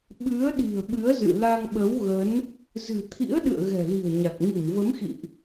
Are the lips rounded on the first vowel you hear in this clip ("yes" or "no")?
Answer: no